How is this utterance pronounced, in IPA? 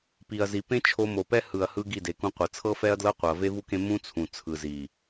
p i˨ ɐ̯ z i˨ p ẽ˦ t͡ʃʰ o˧ m o˨ p ɛ˦ h ɯ˨ ɐ̯ h ɯ˧ ɡ i˦˨ d e˨ k ũ˧ qʷ ɤ˨ t͡sʰ ɤ˦ f ɛ˦ ɐ̯ d l ɤ˦ qʷ ɤ˨ ɐ̯ v e˦ v u˦ k ẽ˦ m ũ˦ t͡sʰ ũ˨ t͡sʰ ɯ˨ z i˨

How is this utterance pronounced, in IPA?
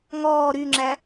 ŋ ɔː ɾ y ŋ͡ǁ æ

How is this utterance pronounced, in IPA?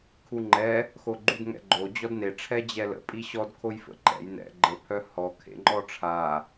kʰ u ŋ͡ǃ ɛ | x o ɡ͡ǃ u d ŋ ɛ̰ ɡ͡ǃ o d͡ʑ ɔ d n e ʈ͡ʂʰ ɛ d͡ʑ ɛ l ə̰ pʼ i ɕ ɔ d kʰ o j f ə̰ ǃ ɛ̰ j n ɛ̰ ɡ͡ǃ ə pʰ œ h ɔ kʰ ḛ ŋ͡ǃ ɔ ʈ͡ʂʰ a

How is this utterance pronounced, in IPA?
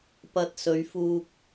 p ɐ˧ t̚ s ɵ˨˧ ɥ f uː˧ k̚

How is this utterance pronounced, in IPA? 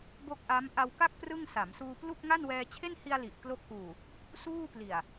b o˥˩ k̚ ʔ a˦˥ m ʔ a˧ w k a˥˩ k̚ p r ɯ˥˩ ŋ s a˩˦ m s uː˧ p l u˥˩ k̚ ŋ a˥˩ n w ɛː˧ t͡ɕʰ e˥˩ n h i˧ a̯ l i˨˩ ʔ k l o˦˥ k̚ ʔ uː˨˩ | s uː˥˩ p l i˨˩ a̯

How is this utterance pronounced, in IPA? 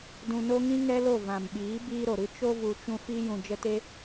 d ũ˧ n o˦ ŋ ĩ˦ ŋ ɛ˦ l o˦˨ v ã˨ m ɓ iː˨˦ b iː˧ ɾ o˨ ɾ ɨ˧ t͡ʃ o˧ v u˨ t͡ʃ ũ˧ f iː˧ j ũ˨ d͡ʒ ə˧ t e˦

